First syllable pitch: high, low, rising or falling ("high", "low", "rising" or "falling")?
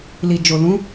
low